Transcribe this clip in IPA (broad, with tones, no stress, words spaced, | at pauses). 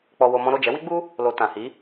k͡pɔ˧wo˧mɔ̃˦ ɾo˦˨d͡ʒɛ˨˦wi˦ɡ͡bu˦ | lo˨ tã˨hi˨˦